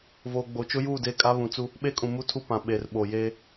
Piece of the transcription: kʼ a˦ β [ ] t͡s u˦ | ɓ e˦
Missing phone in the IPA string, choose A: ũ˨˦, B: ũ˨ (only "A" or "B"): B